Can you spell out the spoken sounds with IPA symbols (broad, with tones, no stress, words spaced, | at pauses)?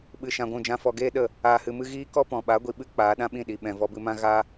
ɓɨ˧ʃã˧ɡʷũ˦˨d͡ʒã˦ fɔ˧ɡeː˦ɗə˦˨ | aː˧hɨ˧mɨ˦ ɣiː˦kɔ˦pɔ̃˨ ɓa˨˦ɡʷi˨ɓɨ˦ k͡paː˨˦ɗã˦ɓĩ˦˨ɗi˨ ɓɛ̃˨vɔ˧bɨ˧mã˦ ɣa˦